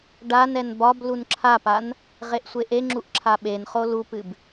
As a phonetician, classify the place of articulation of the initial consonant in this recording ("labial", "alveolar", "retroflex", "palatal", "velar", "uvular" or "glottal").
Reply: retroflex